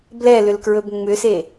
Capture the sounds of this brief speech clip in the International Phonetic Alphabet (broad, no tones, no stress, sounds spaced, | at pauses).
b l ɛ l ʏ l k ɹ ɵ b ŋ͡m ʏ s e